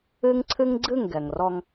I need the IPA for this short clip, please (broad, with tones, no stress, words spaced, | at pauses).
ɨ˦ŋ ǀʰɨ˦ŋɡ͡ǀɨ˦˨ŋ ɡɛ˨ŋrɔ˦ŋ